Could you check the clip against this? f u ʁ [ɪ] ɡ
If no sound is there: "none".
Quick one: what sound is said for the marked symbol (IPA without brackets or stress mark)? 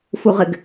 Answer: ɪ